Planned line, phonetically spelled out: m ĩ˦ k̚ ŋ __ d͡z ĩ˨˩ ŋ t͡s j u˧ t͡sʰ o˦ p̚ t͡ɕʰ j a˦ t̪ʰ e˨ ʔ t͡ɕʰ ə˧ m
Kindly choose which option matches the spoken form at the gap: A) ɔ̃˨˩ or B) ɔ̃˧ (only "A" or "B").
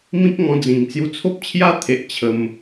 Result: B